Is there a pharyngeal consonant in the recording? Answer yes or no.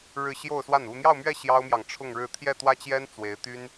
no